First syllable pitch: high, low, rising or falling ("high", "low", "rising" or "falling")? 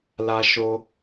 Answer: high